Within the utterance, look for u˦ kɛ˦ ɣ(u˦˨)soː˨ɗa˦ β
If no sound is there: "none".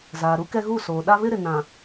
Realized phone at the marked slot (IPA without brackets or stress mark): u˦˨